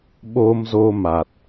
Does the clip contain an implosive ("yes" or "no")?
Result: yes